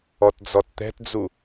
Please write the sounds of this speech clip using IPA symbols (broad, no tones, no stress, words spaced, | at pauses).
ɔtd͡zɔtt̪ɛ̤td͡zu